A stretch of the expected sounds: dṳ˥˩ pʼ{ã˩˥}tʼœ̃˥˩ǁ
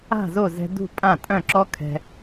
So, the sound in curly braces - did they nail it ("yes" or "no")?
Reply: no